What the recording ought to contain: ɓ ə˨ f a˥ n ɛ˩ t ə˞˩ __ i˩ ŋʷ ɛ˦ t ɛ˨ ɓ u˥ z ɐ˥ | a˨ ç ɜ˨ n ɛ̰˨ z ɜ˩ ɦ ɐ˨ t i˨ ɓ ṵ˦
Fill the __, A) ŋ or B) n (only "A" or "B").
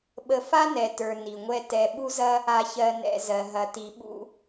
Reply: B